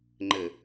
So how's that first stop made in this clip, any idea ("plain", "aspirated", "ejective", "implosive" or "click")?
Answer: click